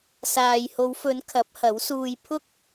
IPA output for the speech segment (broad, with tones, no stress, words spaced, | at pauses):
saː˨jho˨˧wfɵ˨˧n kʰɐ˨˥p̚hɐ˨˥wsuː˧j pʰʊ˥k̚